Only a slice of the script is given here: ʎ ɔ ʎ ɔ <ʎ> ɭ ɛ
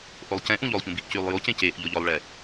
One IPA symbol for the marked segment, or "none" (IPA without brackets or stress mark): lˠ